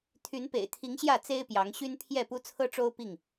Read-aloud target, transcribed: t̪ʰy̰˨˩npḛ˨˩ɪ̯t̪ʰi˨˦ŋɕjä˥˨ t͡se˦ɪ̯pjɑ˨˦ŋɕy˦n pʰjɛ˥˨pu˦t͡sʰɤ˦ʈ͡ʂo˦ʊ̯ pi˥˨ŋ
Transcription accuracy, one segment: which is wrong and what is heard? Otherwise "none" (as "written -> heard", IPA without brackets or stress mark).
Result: y̰˨˩ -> y˨˦